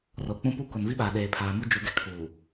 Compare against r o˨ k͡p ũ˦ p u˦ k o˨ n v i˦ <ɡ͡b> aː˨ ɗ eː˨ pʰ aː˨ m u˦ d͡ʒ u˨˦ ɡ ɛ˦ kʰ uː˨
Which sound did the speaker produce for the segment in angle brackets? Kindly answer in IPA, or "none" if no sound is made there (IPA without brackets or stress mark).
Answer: ɓ